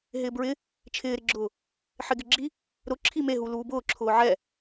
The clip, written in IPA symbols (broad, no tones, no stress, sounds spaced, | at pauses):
ɦ ɪː b ɹ ɪ | t͡ʃʰ ɪː ɾ ɪ ɡ͡ǁ ʊː | ħ ɪ ɡ ɪ ɡ͡ǁ i | ɾ ʊ ǁʰ i m e ɦ u l uː b ʊː ǁʰ ʊː ʕ ɛ